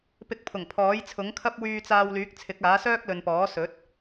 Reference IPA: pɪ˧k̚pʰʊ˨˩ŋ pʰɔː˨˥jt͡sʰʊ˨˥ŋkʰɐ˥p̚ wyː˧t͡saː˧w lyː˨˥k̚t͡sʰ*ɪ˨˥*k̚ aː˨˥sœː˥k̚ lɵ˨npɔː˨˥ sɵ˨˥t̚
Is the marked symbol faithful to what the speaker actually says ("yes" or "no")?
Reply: yes